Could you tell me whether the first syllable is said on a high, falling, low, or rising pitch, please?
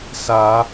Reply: rising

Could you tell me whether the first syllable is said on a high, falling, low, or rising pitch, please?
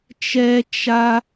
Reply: high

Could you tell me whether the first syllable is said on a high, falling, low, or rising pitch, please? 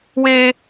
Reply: high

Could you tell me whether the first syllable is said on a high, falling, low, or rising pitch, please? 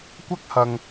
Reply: high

